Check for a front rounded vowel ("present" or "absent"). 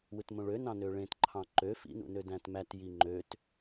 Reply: present